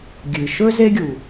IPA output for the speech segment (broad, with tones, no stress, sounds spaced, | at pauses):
ɡʲ ɨ˩ ʃ ɵ˥ z e˦ ɡʲ u˩